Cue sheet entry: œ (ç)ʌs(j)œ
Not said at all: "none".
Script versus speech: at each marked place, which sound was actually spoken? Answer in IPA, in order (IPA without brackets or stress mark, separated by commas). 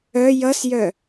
j, j